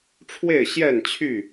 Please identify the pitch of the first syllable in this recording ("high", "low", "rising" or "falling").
falling